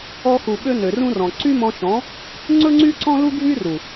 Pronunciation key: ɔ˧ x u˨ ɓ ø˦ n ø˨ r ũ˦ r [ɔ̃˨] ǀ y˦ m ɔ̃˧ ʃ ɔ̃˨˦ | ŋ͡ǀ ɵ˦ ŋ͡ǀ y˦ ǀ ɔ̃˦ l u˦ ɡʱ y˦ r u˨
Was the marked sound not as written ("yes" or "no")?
no